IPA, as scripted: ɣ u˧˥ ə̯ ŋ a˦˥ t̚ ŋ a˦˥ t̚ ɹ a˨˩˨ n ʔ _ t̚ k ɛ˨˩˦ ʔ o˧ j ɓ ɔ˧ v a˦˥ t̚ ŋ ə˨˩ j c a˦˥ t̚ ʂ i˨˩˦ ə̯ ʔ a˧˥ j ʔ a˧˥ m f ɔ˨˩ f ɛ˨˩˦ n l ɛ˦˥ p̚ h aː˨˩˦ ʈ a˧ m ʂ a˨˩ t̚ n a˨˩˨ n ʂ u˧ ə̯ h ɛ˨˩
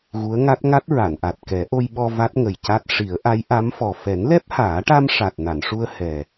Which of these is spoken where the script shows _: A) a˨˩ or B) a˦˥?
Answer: A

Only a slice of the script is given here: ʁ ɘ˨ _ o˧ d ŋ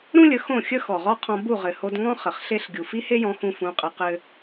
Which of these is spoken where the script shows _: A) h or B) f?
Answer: A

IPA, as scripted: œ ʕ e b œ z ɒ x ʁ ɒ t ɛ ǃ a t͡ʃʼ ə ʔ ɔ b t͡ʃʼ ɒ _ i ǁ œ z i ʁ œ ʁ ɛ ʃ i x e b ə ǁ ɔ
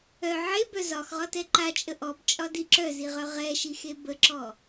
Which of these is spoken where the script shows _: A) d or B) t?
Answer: A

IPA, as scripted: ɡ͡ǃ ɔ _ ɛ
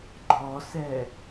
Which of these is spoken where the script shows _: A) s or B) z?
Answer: A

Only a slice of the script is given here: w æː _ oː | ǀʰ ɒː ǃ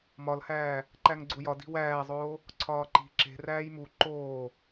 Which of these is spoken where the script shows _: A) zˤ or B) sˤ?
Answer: A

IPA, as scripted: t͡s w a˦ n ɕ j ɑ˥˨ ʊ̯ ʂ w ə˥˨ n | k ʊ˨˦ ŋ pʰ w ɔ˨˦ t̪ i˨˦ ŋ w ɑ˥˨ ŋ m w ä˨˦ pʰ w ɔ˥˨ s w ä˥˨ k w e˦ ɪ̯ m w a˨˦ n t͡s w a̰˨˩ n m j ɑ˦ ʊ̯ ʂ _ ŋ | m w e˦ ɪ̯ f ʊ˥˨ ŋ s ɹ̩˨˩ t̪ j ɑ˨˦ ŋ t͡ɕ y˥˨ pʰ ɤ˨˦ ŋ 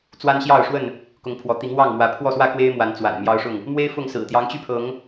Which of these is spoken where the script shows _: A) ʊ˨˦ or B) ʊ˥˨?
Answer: B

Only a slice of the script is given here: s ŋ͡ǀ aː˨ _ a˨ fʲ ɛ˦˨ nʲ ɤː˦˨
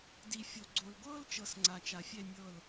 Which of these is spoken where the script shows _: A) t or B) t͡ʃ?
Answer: B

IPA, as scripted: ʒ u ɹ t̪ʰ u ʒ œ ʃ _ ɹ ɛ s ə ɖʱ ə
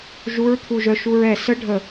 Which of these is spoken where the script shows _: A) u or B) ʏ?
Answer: A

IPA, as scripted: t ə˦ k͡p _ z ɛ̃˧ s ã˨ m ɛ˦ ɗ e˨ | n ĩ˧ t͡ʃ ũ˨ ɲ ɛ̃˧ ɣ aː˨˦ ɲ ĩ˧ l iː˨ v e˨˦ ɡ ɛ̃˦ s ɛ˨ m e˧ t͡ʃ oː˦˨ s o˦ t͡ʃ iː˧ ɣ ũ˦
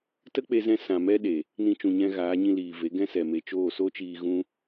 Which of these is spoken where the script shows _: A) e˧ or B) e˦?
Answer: A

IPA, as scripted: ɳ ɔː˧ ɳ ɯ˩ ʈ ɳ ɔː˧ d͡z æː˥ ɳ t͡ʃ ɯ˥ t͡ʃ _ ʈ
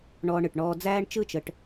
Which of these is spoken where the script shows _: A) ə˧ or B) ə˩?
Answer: A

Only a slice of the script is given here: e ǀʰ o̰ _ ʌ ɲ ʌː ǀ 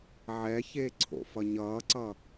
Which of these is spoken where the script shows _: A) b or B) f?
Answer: B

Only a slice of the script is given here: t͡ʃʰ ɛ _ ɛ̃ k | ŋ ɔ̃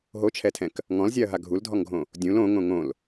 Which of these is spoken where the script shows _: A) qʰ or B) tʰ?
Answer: B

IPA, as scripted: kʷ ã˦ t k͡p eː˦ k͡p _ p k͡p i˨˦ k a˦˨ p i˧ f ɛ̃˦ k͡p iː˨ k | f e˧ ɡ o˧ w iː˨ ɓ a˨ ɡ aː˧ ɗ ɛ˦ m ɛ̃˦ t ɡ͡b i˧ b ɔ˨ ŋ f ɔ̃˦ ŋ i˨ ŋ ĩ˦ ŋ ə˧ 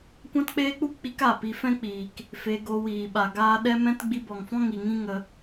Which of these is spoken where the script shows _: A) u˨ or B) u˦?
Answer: B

